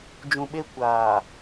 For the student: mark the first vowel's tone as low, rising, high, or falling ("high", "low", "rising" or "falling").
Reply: low